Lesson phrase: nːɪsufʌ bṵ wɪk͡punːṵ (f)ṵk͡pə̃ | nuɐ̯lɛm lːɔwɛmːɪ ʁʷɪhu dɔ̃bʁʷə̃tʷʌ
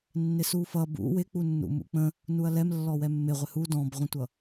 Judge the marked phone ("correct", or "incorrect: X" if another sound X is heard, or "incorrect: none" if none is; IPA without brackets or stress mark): incorrect: m